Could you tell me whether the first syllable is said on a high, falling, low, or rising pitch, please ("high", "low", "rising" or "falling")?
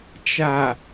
low